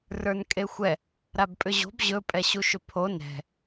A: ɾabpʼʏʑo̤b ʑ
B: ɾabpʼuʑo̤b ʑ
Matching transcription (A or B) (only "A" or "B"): A